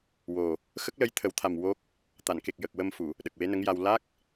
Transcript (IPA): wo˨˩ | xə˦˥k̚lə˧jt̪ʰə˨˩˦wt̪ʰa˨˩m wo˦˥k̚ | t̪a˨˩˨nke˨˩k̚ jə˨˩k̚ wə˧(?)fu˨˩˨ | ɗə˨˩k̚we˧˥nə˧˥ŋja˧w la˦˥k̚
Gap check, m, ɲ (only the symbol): m